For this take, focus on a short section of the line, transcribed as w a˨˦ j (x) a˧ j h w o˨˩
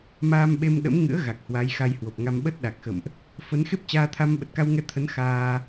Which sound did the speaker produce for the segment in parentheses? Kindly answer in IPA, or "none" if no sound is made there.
x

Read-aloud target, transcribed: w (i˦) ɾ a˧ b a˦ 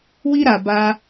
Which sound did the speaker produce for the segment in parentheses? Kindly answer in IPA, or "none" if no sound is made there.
i˦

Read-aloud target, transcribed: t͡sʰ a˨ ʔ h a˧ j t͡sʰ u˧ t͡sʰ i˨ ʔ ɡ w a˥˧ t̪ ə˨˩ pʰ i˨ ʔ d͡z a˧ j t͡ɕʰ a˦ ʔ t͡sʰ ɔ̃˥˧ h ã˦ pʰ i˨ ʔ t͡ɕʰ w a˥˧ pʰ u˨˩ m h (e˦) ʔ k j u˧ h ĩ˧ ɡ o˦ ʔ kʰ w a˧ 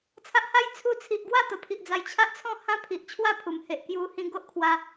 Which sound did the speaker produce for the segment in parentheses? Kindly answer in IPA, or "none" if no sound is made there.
e˨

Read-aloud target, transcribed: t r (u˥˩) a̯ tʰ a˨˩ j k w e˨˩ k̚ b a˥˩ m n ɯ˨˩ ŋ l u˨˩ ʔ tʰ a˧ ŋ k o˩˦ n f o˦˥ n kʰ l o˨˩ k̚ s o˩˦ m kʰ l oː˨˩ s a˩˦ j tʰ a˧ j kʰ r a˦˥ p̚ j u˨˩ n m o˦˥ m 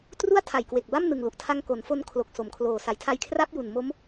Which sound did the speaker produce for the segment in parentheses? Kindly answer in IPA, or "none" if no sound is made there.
u˥˩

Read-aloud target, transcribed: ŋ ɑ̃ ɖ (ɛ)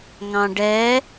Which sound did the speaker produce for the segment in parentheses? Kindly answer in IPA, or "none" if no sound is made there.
ɛ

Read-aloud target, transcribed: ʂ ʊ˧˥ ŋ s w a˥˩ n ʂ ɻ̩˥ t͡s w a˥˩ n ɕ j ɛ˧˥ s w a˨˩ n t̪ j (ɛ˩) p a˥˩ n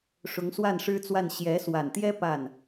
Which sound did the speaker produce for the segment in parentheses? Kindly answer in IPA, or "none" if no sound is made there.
ɛ˥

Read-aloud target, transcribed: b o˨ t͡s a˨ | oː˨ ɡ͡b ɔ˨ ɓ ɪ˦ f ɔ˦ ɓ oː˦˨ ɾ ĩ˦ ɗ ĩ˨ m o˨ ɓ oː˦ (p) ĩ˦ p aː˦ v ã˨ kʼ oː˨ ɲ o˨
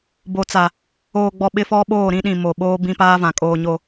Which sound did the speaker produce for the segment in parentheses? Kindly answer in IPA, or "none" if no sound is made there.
b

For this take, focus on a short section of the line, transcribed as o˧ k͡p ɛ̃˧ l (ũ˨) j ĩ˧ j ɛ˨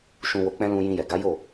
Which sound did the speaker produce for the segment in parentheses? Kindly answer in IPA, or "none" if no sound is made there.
ũ˧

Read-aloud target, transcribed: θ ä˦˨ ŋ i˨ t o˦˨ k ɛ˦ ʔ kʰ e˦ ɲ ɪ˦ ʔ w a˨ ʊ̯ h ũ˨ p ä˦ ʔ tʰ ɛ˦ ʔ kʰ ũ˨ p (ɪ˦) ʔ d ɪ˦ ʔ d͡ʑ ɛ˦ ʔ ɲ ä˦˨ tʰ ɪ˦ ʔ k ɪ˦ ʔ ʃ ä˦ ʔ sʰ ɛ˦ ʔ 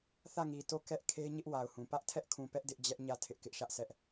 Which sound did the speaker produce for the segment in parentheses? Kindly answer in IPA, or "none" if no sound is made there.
ɛ˦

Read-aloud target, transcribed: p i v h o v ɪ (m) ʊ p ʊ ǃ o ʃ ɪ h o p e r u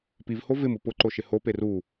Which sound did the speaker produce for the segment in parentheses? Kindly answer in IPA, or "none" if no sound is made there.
m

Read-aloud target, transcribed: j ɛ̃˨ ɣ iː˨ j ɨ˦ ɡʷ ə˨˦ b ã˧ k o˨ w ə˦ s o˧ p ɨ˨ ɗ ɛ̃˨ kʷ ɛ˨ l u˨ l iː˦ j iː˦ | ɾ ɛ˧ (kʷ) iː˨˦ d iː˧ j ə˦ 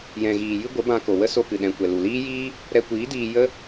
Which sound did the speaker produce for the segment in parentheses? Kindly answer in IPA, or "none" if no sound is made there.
kʷ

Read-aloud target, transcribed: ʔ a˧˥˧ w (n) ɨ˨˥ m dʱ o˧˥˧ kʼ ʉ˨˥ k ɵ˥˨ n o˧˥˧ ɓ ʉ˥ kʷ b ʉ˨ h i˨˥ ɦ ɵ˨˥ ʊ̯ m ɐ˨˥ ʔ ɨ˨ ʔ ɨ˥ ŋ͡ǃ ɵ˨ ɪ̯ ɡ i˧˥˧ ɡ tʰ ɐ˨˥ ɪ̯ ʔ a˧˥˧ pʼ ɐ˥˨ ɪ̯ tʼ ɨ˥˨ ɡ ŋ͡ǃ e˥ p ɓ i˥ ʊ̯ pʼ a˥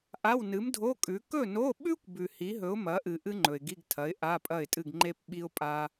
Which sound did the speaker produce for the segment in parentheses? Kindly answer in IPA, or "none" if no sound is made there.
n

